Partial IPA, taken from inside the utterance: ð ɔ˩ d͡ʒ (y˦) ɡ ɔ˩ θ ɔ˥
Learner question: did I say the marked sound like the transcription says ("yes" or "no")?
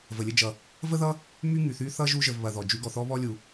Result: yes